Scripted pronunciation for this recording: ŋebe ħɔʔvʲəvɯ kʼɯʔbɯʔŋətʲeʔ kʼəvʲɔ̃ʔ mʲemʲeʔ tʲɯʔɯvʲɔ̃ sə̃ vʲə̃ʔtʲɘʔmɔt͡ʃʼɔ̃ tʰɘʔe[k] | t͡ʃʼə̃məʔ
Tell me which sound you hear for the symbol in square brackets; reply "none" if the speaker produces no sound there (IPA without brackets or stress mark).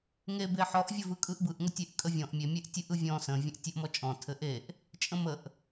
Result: ʔ